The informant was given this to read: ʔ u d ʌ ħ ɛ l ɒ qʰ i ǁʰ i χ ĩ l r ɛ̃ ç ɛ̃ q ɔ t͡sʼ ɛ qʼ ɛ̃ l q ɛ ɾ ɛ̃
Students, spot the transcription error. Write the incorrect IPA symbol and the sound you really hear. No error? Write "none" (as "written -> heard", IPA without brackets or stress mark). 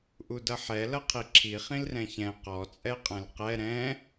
ɒ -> ʌ